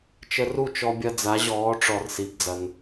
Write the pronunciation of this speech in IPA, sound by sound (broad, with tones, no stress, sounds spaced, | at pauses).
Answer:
t͡ʃ ə˧ r u˥˩ t͡ʃ ɔ˧ bʲ ɐ˧ d͡z a˩˧ ʑ ɔː˩˧ ʈ͡ʂ ɔ˩ r s i˩ b d͡z ɐ˩ n